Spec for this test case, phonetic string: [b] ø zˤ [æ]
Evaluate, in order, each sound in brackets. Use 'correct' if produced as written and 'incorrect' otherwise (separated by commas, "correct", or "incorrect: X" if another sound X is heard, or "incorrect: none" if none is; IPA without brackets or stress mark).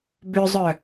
correct, incorrect: œ